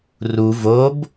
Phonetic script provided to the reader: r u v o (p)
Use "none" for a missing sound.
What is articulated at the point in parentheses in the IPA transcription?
b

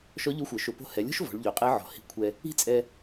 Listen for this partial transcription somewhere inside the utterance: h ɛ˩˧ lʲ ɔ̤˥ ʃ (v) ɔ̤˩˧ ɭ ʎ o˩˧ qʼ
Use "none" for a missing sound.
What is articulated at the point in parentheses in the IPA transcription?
v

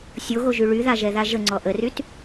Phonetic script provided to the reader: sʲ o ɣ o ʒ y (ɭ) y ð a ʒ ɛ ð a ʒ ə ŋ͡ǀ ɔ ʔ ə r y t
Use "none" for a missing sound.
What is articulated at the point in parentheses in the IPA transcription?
ɭ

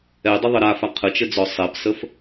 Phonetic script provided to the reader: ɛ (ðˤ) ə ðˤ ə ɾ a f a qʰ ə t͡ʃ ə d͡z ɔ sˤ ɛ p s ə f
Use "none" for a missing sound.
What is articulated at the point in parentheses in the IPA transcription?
dˤ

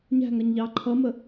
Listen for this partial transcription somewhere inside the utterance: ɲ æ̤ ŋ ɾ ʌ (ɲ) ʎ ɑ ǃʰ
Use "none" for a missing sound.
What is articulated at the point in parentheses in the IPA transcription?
ɲ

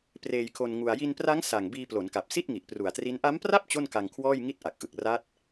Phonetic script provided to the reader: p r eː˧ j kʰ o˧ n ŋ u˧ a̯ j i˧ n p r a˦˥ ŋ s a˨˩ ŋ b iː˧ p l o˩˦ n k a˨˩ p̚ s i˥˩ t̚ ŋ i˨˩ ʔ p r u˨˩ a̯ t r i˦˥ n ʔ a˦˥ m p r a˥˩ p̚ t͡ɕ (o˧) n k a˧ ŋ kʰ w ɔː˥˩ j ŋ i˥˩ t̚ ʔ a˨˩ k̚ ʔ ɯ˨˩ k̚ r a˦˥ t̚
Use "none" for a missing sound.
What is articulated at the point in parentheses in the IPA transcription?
o˥˩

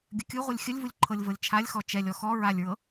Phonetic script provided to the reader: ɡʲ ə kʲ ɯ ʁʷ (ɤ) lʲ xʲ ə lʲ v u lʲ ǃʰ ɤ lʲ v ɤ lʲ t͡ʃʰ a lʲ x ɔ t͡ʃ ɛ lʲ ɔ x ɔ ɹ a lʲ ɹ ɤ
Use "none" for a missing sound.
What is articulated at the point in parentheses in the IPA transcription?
ɯ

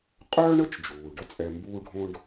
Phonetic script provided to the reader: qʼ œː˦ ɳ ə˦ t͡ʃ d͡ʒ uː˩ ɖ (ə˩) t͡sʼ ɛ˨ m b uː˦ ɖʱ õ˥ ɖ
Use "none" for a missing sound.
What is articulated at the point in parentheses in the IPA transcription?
ə˦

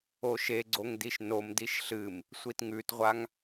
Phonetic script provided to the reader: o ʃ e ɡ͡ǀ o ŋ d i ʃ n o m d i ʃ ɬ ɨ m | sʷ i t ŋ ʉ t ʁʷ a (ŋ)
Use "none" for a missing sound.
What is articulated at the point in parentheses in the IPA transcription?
ŋ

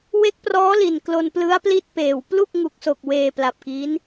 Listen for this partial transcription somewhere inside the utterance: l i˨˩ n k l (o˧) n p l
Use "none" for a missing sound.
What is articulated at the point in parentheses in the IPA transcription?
o˧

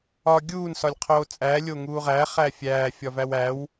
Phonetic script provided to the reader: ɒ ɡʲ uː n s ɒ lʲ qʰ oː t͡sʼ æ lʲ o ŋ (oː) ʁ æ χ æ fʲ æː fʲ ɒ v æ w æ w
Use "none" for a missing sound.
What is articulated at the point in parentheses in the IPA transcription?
uː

